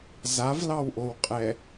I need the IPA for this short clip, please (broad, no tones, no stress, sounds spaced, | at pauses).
z a v l ɑ w ʔ o w qʼ ɛ